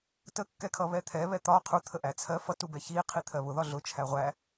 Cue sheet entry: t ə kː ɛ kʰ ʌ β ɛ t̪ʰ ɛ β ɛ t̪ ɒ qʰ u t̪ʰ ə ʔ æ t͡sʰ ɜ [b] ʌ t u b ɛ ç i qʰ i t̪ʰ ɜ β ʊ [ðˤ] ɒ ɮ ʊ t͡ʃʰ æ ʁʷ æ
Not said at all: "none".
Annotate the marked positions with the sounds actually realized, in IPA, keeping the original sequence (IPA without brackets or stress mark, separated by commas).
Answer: f, ð